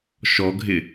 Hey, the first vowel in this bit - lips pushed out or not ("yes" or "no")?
yes